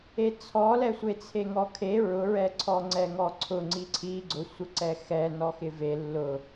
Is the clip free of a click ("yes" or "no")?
no